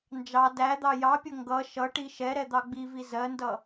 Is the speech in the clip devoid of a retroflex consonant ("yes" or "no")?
no